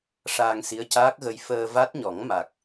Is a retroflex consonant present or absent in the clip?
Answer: present